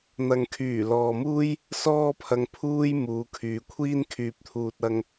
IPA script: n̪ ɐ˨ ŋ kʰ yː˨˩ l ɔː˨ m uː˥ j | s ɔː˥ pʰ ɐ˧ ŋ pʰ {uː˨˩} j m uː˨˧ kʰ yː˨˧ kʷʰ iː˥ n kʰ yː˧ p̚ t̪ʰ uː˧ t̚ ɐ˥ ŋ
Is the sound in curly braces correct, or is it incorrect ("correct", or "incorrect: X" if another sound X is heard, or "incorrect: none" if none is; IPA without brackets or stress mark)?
incorrect: uː˥